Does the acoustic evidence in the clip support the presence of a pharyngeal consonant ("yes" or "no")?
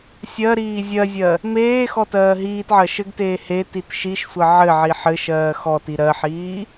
yes